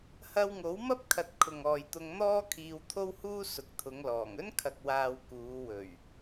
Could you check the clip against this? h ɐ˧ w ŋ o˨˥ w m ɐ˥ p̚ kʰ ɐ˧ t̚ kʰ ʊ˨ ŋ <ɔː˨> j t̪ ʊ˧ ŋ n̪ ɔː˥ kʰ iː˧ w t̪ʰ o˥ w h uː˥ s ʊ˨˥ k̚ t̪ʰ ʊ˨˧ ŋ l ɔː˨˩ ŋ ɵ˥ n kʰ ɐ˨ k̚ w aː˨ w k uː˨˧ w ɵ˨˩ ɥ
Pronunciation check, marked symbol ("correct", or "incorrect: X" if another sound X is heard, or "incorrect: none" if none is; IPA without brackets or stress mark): correct